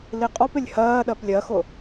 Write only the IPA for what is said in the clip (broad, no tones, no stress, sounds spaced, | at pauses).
l i qʼ ɔ p ɪ lʲ h ɜː ɗ ɜ p lʲ ɜ x ʊ